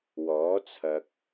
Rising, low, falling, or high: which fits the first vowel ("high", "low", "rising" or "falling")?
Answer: rising